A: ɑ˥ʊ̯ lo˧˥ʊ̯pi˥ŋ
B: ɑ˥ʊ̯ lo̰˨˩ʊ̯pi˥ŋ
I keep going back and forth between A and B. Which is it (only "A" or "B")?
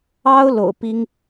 B